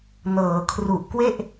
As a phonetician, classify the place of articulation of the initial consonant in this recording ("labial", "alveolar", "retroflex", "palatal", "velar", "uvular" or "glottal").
alveolar